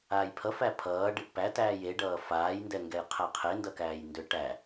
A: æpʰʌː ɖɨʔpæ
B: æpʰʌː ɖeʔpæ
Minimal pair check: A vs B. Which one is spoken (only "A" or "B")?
A